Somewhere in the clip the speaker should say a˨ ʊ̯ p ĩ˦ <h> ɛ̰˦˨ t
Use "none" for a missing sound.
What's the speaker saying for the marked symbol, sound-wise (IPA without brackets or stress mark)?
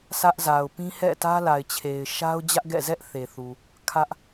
h